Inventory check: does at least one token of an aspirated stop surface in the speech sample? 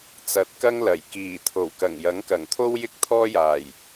yes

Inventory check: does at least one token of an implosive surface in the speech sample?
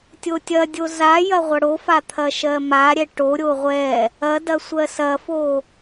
no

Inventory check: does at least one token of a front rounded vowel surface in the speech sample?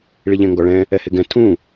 no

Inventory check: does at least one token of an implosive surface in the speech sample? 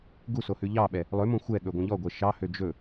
yes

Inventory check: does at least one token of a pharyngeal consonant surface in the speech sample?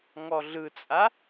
no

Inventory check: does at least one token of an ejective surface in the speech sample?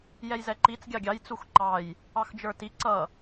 no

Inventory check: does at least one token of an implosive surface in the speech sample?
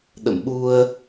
yes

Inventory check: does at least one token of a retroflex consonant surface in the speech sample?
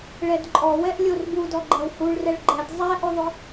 yes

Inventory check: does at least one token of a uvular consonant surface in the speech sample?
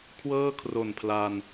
no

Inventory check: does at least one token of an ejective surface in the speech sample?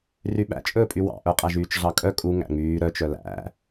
yes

